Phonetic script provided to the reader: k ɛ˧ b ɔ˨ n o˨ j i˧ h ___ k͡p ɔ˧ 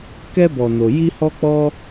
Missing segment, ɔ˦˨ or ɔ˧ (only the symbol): ɔ˧